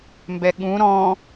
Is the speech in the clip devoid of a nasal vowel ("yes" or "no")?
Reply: no